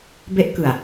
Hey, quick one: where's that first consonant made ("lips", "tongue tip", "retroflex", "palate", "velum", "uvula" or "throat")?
lips